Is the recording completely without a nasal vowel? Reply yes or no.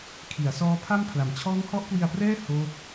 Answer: yes